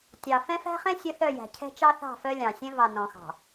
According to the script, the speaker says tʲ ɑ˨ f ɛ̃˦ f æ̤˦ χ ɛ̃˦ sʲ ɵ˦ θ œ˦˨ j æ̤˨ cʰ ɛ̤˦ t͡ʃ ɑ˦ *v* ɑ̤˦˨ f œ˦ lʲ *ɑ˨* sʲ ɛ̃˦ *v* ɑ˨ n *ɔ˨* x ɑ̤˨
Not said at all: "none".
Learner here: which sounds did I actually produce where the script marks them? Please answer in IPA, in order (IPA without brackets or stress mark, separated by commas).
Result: θ, ɑ̃˨, v, ɔ̃˨